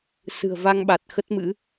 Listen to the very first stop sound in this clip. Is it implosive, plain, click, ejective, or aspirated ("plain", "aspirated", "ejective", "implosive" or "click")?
implosive